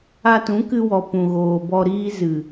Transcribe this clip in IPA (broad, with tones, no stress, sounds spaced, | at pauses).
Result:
a˧ t ũ˨˦ k ɨ˧ w ɔ˨ p ũ˨ ɣ oː˨ b ɔ˧ ɾ iː˦ z ɨ˨